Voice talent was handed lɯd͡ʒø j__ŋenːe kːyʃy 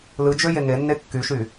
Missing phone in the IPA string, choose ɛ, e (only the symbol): e